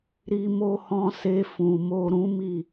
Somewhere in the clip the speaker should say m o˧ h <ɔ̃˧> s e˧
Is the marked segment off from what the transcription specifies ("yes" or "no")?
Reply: no